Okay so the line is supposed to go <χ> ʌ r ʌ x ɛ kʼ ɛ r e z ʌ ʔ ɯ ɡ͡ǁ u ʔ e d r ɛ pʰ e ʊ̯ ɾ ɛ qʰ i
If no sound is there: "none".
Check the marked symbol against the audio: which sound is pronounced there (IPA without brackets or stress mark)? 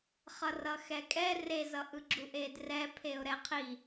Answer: χ